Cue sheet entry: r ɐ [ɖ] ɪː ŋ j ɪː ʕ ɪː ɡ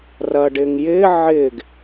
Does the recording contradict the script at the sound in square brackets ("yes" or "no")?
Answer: no